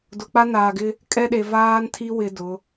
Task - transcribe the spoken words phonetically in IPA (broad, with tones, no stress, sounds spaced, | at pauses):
d ʊ˨ k͡p a˦ n aː˨ ɡ ɪ˦ | kʼ ɛ˦ ɗ e˨ v aː˦ n tʰ i˦ w ɪ˦ d ʊ˨˦